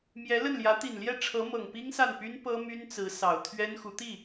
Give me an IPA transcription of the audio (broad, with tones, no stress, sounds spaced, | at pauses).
m j ɛ˧˥ l ə˥˩ n l j ä˧˥ t̪ i˨˩ n l j ɛ˥˩ ʈ͡ʂʰ ɤ˧˥ m ɤ˨˩ ŋ p i˥ ŋ s a˥˩ n p y˥ n p ɤ˥ m y˥ n t͡s ɹ̩˧˥ s ɑ˨˩ ʊ̯ t̪ʰ ɥ ɛ˥ n x u˧˥ t̪ i˥˩